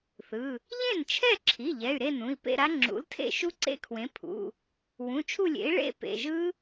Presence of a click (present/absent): present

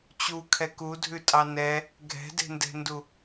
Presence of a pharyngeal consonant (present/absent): absent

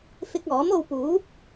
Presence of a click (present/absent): absent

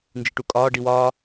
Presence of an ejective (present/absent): present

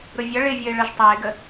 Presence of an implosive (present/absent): absent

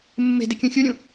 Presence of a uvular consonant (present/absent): absent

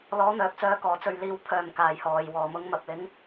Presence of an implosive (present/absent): absent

